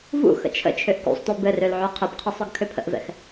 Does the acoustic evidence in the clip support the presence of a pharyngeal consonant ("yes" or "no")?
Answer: yes